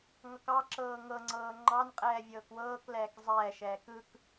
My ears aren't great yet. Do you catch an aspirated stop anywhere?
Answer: no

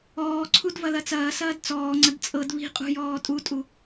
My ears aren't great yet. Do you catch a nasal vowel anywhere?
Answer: no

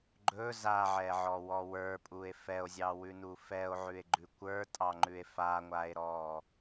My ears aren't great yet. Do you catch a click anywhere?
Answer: yes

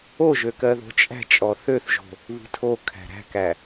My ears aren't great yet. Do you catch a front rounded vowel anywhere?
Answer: yes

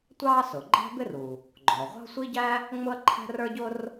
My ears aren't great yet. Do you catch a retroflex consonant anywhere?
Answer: no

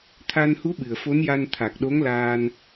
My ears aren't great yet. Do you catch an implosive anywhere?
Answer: yes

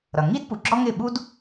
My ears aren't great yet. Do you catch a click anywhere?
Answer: yes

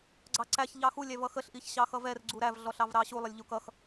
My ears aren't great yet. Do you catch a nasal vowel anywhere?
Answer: no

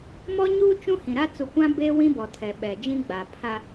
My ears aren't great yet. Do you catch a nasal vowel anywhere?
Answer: yes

